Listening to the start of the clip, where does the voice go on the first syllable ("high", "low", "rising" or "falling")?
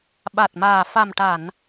low